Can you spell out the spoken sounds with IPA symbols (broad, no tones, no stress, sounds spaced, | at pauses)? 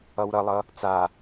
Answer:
ʌ w ɾ ʌ lˠ ʌ | t͡s a